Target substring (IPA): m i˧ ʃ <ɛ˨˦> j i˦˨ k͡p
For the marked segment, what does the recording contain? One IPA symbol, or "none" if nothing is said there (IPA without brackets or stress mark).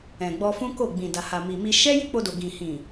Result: ɛ˦